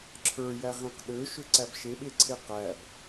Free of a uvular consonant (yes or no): no